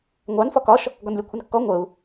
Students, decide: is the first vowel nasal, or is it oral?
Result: oral